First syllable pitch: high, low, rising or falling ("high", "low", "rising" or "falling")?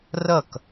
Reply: falling